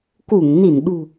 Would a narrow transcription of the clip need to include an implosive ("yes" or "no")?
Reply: yes